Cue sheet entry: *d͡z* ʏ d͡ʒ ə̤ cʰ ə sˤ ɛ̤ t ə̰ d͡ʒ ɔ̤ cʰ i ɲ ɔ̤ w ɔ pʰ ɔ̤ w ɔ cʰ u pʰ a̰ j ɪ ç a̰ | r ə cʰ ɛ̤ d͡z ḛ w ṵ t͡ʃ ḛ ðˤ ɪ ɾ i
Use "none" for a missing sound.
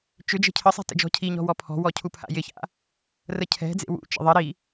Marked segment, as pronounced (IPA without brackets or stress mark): t͡ʃ